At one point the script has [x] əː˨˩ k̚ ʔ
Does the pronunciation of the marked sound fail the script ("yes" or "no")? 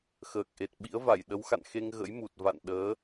no